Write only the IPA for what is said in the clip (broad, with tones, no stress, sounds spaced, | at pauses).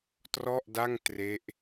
t r ɔ˥˩ ʔ d a˥˩ ŋ t r e˦˥ ʔ